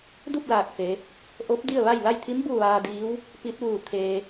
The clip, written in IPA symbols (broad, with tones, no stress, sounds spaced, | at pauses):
d u˥˨ p̚ l aː˧˩ k̚ f e˩˧ | ʔ o˧˥ p̚ d i˥˨ ə̯ ʋ a˥˨ j l a˥˨ j t̪ʰ i˧˥ m b u˥˨ ʋ aː˧ d iː˧˥ w | p i˧˥ t̚ ʋ uː˧˩ t̪ʰ eː˧